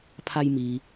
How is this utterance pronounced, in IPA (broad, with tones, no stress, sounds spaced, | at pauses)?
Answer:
pʰ a˧ j m iː˩